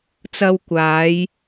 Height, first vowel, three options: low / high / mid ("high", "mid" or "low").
low